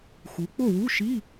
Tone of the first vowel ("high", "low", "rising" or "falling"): rising